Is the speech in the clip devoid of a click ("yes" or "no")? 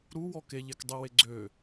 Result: no